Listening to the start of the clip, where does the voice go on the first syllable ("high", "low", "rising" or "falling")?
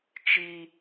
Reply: high